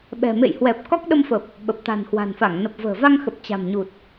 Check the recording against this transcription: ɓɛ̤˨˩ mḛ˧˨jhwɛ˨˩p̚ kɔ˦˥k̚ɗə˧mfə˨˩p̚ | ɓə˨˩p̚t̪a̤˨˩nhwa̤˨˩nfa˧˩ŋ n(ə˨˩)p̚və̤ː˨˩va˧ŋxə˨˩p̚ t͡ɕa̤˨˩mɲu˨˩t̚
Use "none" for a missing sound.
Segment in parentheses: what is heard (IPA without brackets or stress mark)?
ə˨˩